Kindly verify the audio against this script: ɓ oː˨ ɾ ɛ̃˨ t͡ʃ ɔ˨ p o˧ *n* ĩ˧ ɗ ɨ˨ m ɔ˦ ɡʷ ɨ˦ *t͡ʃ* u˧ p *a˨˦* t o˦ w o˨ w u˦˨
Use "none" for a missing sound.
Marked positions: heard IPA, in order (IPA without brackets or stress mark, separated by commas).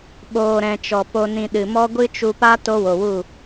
n, t͡ʃ, a˦